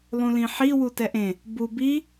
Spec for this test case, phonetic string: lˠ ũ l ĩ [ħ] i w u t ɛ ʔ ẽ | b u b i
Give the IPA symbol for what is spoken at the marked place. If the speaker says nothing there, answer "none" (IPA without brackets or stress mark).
ħ